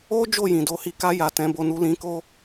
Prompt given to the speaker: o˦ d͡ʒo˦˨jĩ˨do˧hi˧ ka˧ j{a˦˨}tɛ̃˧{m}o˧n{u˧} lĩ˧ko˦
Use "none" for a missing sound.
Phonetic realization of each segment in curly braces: a˨, b, u˧

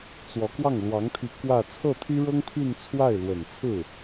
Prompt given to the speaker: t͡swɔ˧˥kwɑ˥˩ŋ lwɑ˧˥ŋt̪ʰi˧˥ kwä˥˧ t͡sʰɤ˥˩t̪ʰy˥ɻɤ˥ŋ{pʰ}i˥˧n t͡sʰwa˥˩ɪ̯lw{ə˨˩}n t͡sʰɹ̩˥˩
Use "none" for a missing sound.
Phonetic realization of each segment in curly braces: pʰ, ə˨˩

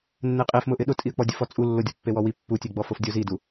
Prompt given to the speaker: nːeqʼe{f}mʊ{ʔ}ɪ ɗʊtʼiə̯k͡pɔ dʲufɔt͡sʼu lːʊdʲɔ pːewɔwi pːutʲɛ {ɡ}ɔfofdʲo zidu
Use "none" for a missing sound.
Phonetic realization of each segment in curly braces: f, ʔ, ɡ͡b

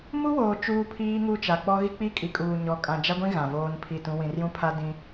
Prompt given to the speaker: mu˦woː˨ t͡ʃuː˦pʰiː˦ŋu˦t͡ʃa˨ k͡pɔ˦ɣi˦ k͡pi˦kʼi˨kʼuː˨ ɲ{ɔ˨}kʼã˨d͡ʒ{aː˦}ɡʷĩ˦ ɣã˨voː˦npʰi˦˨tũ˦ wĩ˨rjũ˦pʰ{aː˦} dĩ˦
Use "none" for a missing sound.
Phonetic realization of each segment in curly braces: ɔ˨, a˦, a˦

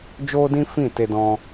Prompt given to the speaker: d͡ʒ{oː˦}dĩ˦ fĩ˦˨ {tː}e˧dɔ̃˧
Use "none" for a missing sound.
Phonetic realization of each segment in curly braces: oː˦, t

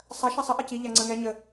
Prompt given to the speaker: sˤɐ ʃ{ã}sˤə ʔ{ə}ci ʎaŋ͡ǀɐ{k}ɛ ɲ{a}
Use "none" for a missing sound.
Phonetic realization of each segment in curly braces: a, ɐ, ŋ, ə

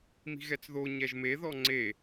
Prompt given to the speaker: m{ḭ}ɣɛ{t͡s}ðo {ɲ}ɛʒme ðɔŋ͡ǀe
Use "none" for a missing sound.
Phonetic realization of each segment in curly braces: i̤, t͡s, ɲ

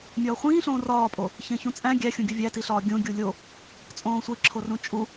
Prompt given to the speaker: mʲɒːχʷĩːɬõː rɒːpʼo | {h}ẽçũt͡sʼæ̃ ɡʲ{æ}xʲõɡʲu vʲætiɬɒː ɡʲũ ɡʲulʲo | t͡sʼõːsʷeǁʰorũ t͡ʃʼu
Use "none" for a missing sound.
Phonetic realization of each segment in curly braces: ç, æ

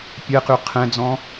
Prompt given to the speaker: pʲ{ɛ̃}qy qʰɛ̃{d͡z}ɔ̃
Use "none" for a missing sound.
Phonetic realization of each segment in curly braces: ɛ, d͡z

